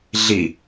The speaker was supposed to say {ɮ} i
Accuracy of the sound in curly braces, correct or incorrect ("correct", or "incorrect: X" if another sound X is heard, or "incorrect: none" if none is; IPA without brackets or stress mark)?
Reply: correct